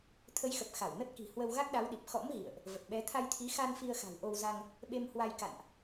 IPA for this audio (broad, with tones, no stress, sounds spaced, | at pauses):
t̪ʰ ə˨˦ j x ə˨˩ p̚ x a˧˩ w n ə˦˥ t̚ k i̤˨˩ h w ə˧ w ɣ a˦˥ k̚ ɗ a˨˦ w ɗ i˨˩ p̚ x ɔ̰˧˥ m ɣ ḭ˧˨ ə̯ ʔ | v ə˨˩ t̚ ɓ ɛ˨˦ t̪ʰ a˧ j t̪ʰ i˨˦ x a˧ n f i˧ ə̯ x a̤˨˩ w ʔ o˧ w z a˧ ŋ | ɓ e˧ m h w a˧ j k a̰˧˨ n ʔ